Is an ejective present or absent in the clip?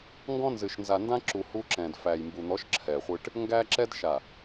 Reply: absent